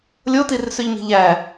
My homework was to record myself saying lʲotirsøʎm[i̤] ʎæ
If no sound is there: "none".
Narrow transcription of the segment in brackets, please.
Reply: i̤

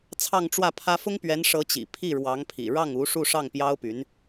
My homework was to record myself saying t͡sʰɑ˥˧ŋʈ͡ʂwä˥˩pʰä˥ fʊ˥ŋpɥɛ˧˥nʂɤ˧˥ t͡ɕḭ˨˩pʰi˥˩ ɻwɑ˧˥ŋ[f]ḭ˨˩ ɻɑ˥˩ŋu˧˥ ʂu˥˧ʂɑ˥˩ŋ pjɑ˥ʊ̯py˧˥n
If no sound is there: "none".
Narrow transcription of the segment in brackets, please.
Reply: pʰ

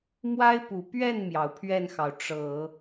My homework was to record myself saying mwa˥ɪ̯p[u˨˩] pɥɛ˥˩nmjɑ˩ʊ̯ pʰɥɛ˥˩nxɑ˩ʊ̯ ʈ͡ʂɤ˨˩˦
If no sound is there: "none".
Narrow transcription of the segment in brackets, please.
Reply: u˨˩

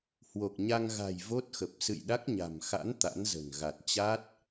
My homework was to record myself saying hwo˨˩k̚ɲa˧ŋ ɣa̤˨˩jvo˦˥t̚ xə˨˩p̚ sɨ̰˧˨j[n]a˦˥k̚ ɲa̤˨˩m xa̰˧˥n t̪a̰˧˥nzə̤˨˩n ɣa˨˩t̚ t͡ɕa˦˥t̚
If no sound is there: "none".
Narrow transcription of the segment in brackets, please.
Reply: ɗ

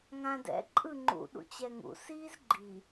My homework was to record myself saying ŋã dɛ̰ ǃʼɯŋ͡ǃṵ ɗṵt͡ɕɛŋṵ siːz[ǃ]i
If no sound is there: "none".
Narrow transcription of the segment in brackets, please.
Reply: ɡ͡ǃ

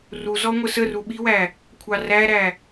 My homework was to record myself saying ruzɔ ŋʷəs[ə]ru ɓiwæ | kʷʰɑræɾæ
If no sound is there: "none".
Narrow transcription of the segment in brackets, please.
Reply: ə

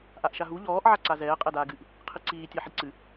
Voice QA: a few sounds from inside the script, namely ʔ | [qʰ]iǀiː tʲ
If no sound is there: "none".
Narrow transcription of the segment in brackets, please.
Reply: qʰ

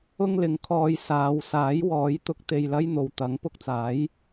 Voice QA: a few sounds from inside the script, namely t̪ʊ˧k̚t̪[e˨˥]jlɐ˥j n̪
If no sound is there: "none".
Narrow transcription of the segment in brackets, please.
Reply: e˧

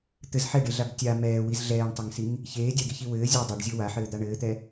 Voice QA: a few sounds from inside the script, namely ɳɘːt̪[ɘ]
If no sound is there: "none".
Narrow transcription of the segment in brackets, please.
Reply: ɛ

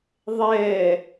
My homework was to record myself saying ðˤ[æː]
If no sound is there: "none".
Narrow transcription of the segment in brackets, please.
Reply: ɛː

